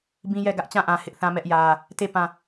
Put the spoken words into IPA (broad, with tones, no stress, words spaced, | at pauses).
bĩ˦jɛ˦˨ ɡä˦ʔt͡ɕã˦˨ʔã˨ hɪ˦ʔθã˦mɛ˦ʔjä˦ | te˦˨ pã˦˨